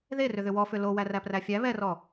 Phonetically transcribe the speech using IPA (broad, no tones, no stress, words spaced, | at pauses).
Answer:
ðerʏðʏ wɔfʏ lo wæræpræfʲæ βɛrɔ